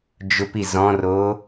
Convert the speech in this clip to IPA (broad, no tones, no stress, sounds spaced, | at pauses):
d͡ʒ ʊ p i z ɔ̃ r o